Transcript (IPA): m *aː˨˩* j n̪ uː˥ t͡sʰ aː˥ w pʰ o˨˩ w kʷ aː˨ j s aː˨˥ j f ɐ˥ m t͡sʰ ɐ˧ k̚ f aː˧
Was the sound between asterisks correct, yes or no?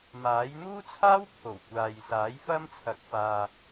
no